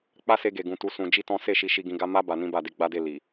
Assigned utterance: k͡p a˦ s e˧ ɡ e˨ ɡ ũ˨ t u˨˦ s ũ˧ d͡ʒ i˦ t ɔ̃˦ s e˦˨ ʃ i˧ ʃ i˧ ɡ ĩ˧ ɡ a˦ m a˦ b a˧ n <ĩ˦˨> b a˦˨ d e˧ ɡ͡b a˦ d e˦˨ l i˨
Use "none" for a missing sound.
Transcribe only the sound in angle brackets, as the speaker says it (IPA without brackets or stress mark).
ĩ˦